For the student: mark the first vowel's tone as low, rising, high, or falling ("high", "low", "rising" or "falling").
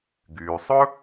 low